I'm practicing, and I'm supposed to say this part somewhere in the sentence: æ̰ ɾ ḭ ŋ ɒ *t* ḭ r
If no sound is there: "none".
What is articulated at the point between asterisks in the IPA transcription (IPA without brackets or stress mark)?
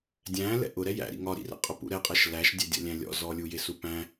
ɾ